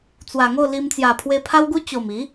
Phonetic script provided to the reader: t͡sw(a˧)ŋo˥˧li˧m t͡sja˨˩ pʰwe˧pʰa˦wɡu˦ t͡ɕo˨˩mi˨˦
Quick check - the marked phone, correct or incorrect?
incorrect